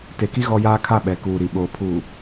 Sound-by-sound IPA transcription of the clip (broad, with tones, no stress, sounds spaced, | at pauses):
t e˨ k i˦ ɣ ɔ˦ j aː˦ kʰ a˦˨ ɓ ɛ˨ k uː˨ ɾ i˨ ɓ oː˨ pʰ uː˨